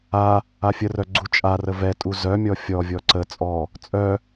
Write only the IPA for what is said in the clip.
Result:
a | afʲərœ ɡ͡ǀut͡ʃʼarə vɛtʼu zœmʲɔ fʲɔvʲɔ ǀə t͡sʼɔ | t͡sʼœ

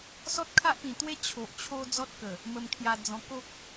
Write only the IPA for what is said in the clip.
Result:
sɔ˦t̚kʰa˦ʔpĩ˨˩t̪we˦ t͡ɕʰo˨ʔt͡ɕʰo˦ d͡zɔ˦t̚kə˨˩ | mə˧mkʰja˧d͡zɔ̃˧ ko˦k̚

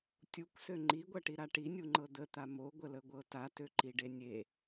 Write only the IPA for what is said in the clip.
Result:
tʲukʷsø ŋ͡ǃiɡʷʌʈiɾa ʈinʲuŋ͡ǃɤ d̪ət̪a moɡʷələɡʷɤ tatøǃiɖe nʲe

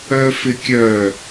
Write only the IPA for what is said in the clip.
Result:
œfɪkʲœ

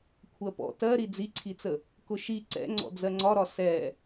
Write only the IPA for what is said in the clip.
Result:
kʷʰɜpɔ̰ tɜ ɾid͡ziǀʰit͡sə | kʊʃi ǀɛ̰ ŋ͡ǀɔ̰d͡zɜŋ͡ǀɒɾɒ sɛ

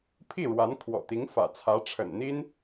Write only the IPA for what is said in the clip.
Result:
pʰi˥˩ɻwa˧˥nkʰwɔ̰˨˩t̪i˧˥ŋ fä̰˨˩t͡sʰä˧˥ʈ͡ʂʰə̰˨˩nn̪i˥n

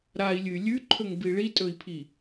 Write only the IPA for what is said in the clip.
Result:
ɾai̯lʲɨy̯ lʲʉǃʰɵŋbi ɭitʼɵi̯pʰi

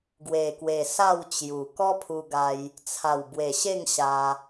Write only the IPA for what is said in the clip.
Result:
ɡwe˨˩kwe˨˩ sa˥˧wt͡ɕju˨˩ kɔ˦pʰu˧ɡa˧j | t͡sʰa˨˩wbwe˨˩ɕe˥˧ŋ ɕa˧

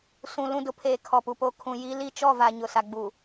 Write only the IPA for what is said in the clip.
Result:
sũ˨lũ˦˨dʊ˦pʰeː˨ kʰɔ˨pu˨po˦ kʰũ˨ji˦ li˦t͡ʃɔ˦˨va˨ ɲʊ˨ sa˨ɡ͡bu˨

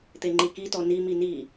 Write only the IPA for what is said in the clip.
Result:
t̪eŋ͡ǃikitɔ nimi ni

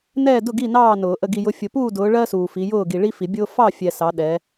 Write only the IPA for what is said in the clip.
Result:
nɛː˥˨dʊ˥˨ɡi˥˨ nɑː˥˨nʊː˨˩˦ ʔə˨ɡi˨jʊ˨˦ fʲʊ˨puː˥˨dʊː˨˦ ɭɜ˥suː˨fi˨˦jʊː˥˨ ɡi˨ɭi˥fi˨˩˦bʲʊː˥ fɑ˥˨fʲɛ˨ sɑ˨˦ɗɛ˨˦

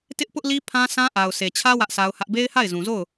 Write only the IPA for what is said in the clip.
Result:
tɪ˦ʔpʊ˦ʔli˦ pʰã˦sã˦ ʔa˨ʊ̯se˨t͡ɕʰä˦ wä˦ʔsʰa˦ʊ̯hä˦ʔ be˦ɪ̯ha˦˨ɪ̯zũ˨zo˦˨ʊ̯

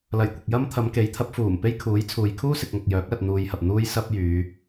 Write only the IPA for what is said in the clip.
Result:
lɐ˨˩jkʷɪ˨k̚jɐ˥m t̪ʰɐ˨˧mke˨˥jt̪ʰɐ˨˥p̚ fuː˨˩m pe˥jkʰuː˨˥jt͡sʰuː˨j kʰuː˥sɪ˨k̚ŋɐ˨k̚ jœː˨˥k̚ lɐ˧t̚n̪uː˧jhɐ˨p̚ n̪uː˥jsɐ˥p̚jyː˨˧

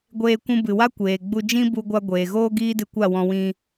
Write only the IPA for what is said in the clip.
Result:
ɡʷeː˧kʷũ˧bɨ˨wa˦ kʷeː˨ɡ͡bu˧ d͡ʒĩ˦bu˧ɡʷa˧ ɡʷeː˨ɣoː˦ ɡiː˦dɨ˧kʷa˦˨wɔ̃˧ wĩ˧

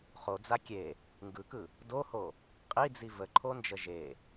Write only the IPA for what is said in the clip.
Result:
χod͡za kʲe | ŋɡɯkɯ | doho | qʼid͡zi vəǃʰond͡ʒə ʒe

